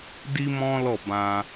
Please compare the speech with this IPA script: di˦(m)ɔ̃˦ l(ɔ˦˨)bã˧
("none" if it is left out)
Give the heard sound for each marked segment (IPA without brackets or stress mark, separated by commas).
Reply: m, ɔ˦˨